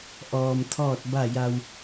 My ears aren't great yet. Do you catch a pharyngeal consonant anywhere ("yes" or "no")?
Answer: no